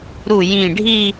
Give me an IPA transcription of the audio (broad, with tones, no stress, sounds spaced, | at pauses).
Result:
ɾ u˧˩ j ĩ˧˩ ɖʱ i˥˧